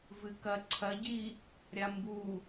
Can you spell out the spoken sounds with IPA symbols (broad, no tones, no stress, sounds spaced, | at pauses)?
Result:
v ɨ k ɐ ǀʰ ɐ ɟ i | ɾʲ a m b u